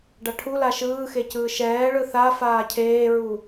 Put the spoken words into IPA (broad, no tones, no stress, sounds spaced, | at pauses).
ɖ a ʈʰ u l a ʃ ɯː x e c ɯː ʃ ɛː ɭ ɯ θ a f aː cʰ eː ɹ u